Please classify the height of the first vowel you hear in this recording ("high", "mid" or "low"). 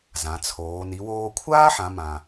low